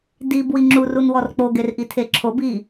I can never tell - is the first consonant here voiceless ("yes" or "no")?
no